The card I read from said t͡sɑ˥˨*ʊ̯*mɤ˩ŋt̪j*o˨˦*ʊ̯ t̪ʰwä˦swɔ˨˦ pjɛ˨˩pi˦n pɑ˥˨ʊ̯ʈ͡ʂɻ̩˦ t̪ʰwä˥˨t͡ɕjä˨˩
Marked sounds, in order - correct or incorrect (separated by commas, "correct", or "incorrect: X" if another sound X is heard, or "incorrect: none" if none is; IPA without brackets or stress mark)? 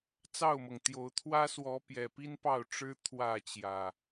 correct, correct